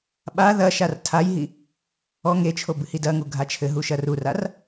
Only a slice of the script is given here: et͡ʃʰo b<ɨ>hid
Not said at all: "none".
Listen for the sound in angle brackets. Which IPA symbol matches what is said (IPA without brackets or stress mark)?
ɨ